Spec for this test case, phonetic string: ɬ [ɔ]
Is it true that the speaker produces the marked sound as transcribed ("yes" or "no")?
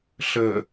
no